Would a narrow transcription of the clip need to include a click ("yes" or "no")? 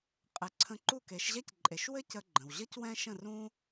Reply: yes